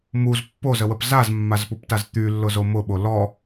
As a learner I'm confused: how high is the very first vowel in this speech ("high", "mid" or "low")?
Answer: high